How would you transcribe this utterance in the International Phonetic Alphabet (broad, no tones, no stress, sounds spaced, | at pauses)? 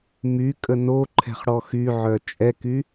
m y kʼ ə n o ǃʰ ɛ̤ χ ɽ ɔ x y ʕ œ t͡ʃʼ ɛ k y